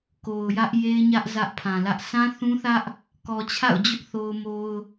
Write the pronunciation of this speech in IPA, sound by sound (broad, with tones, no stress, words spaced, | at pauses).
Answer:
ko˨ʊ̯jä˦ʔ je˦ɪ̯ɲä˦ʔ zä˦ʔ pʰã˨lä˦ʔ sã˦θũ˦θä˦ʔ | kɔ˨t͡ɕʰa̰˦˨ʊ̯d͡ʑʊ˦ʔ θo˦ʊ̯mo˦ʊ̯